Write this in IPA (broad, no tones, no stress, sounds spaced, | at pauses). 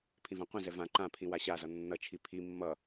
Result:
pʰ ĩ v ã qʷ ĩ z ɛ v ã ǃ ã pʰ ĩ w a ɕ a z ʌ nː ʌ t͡ʃʰ i pʰ i mː ʌ